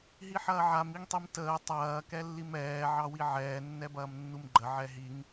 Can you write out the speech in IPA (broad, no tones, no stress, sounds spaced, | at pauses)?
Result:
ɦ i ħ ɐː ʕ a m i ŋ tˤ i m t əː tˤ ɐː k ɛ lː i m ɛː ʕ ɑ w i ʕ ɛː nː ɛ b ɐː m nː u m ɡ͡ǃ ə ʕ ɛ ɦ i ŋ